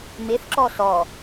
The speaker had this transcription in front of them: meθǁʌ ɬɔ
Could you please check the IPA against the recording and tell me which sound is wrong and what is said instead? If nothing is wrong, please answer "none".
ʌ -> ɔ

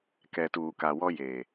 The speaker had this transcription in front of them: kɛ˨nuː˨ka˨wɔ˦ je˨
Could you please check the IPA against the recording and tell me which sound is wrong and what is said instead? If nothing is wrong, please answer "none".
n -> t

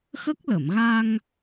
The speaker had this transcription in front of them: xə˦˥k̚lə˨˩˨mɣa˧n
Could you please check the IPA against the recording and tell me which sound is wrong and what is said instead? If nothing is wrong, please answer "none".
n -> ŋ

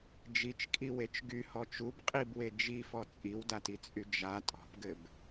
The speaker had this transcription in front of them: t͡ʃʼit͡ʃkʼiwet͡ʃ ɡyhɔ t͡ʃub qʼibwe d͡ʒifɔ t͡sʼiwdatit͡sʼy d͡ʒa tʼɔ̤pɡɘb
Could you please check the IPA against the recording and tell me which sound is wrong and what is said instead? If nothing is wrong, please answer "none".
t͡ʃʼ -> d͡ʒ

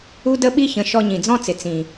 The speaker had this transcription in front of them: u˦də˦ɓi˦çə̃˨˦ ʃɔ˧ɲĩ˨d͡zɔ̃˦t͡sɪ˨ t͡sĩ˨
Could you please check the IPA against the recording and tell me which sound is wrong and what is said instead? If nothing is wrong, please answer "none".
none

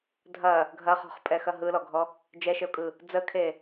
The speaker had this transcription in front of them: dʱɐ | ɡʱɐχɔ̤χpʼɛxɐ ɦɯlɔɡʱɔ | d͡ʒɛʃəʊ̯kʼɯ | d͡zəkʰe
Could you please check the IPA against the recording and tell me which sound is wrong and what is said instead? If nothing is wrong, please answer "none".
none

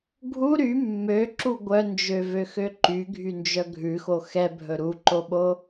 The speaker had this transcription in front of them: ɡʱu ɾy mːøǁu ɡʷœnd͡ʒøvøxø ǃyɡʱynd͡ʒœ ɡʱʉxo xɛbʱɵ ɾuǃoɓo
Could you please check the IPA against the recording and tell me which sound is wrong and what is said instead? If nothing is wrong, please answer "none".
none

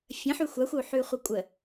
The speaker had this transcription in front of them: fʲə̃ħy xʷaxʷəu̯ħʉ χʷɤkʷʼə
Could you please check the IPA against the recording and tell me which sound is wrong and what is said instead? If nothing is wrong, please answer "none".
none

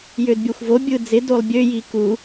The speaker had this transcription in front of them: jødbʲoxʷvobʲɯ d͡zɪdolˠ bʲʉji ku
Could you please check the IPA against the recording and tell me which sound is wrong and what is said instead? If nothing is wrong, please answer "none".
ʉ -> ø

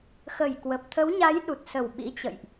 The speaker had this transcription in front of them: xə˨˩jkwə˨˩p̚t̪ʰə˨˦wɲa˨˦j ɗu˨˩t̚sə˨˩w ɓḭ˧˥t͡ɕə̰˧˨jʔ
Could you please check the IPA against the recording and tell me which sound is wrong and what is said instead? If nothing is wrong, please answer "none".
none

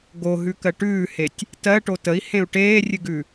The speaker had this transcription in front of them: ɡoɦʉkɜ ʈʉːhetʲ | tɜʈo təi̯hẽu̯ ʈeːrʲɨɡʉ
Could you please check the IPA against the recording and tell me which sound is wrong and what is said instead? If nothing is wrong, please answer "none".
none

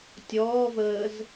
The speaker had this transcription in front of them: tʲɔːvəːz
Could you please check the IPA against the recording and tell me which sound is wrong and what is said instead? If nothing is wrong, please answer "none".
none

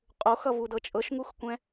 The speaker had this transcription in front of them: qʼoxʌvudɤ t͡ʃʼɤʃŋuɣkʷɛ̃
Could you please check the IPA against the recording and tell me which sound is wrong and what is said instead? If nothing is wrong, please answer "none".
ɣ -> x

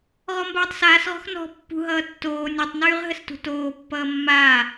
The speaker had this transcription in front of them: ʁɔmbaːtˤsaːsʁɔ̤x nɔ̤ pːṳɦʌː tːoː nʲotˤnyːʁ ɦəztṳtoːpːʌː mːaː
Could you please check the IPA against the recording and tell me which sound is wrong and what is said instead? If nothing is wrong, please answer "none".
z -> s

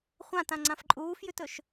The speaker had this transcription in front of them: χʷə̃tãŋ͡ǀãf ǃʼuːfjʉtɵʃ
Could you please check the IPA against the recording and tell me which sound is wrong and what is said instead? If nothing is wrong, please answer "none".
ə̃ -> ã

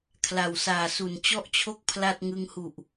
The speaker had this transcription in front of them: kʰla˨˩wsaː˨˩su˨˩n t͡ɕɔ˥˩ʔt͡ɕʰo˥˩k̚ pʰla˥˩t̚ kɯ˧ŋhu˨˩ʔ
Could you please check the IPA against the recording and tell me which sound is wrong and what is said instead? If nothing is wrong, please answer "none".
k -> ŋ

